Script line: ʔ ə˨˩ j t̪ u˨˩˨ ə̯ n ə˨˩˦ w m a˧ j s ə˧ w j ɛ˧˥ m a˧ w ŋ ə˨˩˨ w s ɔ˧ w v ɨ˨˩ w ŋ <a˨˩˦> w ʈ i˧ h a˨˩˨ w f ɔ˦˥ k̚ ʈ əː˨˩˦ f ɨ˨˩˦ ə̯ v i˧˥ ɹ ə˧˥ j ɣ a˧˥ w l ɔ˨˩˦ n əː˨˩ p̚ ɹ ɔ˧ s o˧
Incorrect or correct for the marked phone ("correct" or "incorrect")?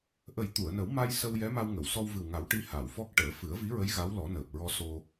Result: correct